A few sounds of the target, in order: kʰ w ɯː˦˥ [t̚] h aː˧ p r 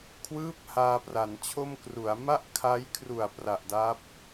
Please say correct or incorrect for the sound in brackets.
incorrect